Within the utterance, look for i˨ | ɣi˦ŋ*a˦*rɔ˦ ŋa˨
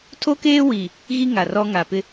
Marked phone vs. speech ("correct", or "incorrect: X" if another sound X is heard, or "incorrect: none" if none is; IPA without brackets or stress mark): incorrect: a˨